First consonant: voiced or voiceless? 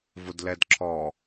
voiced